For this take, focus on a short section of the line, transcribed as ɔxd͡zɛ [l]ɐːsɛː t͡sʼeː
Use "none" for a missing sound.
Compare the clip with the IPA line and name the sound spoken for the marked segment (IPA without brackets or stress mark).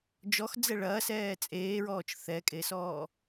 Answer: ɭ